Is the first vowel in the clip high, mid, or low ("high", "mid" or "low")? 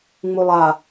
high